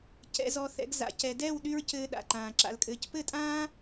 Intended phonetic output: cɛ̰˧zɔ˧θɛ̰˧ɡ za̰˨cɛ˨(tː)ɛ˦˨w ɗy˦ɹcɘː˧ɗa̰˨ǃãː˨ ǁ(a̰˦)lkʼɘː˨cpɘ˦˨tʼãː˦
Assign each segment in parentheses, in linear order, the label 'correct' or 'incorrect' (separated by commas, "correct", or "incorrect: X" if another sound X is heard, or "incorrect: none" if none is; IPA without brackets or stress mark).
incorrect: d, incorrect: a̰˨